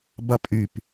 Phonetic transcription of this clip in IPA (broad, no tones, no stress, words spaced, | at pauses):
bɐpʼyp